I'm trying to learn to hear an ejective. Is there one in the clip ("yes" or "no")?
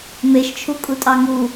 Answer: yes